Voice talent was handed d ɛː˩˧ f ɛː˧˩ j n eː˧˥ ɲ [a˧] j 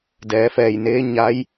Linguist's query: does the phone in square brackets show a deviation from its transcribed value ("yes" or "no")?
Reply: yes